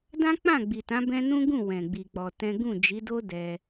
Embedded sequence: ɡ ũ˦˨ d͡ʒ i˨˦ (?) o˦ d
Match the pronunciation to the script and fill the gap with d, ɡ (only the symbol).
d